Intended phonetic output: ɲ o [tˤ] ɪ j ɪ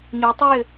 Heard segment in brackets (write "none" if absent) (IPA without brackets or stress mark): tˤ